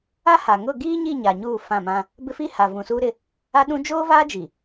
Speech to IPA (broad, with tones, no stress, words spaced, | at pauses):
a˦ha˨ ŋʊ˦˨ɡiː˦ɲi˦˨ ɲa˨ɲuː˦˨ fã˦˨mã˦ | bɪ˦fi˦ ha˨vũ˨suː˦ɾɪ˦ | a˦ɗũ˦ d͡ʒoː˦vaː˦d͡ʒi˨